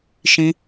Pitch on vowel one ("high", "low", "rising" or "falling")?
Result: high